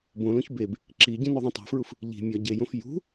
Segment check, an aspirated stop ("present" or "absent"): absent